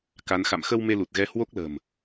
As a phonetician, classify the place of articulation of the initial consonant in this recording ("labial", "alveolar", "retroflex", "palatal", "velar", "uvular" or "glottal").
velar